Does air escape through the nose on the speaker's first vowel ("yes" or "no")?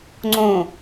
yes